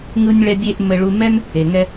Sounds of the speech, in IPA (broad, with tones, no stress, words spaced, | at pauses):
ŋɯ˧nʲɭɛ˧ bʲe˧ʔ mɘ˧ɭu˧mɛ˦n | e˨ŋɛ˧